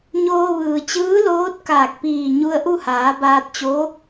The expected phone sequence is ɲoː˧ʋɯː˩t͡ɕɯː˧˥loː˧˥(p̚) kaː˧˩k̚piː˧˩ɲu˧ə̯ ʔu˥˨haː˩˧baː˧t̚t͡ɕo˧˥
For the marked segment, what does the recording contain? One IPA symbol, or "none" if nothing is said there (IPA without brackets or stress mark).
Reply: t̚